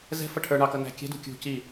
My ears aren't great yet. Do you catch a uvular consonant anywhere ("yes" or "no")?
no